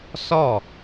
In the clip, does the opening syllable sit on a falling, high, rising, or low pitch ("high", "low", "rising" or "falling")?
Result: falling